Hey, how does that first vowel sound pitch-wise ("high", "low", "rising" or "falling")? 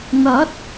rising